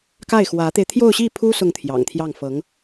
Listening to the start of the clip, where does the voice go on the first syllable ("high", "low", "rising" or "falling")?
falling